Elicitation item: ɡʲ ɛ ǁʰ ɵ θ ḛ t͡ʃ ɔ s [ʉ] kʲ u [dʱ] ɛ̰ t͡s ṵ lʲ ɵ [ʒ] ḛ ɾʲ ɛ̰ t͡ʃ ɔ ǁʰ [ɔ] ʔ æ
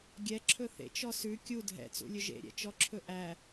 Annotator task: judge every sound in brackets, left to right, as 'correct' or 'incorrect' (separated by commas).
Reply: correct, correct, correct, incorrect